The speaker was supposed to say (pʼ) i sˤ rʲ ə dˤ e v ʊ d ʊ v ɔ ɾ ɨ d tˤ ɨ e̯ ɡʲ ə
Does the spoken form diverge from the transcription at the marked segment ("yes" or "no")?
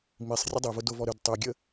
yes